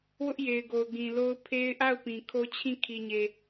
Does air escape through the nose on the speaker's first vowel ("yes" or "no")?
no